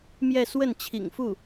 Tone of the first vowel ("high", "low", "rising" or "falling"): falling